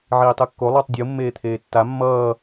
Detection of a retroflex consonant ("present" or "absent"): absent